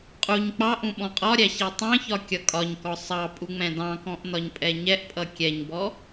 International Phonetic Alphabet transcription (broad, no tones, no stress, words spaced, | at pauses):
qʼuɲ k͡pɑʔũ ɓɔ̃qʼɒɾʲæ ɕitˤɑ̃çɒ kʲʌkʼɒɲkɔ sˤɑ pʼuŋ͡mɛ̃dɑ̃kɔ̃ʔ nɒɲpʼɛɲɛʔpʼʌ kʲɛɲbɔ